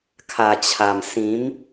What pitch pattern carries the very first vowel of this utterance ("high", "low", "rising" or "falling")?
low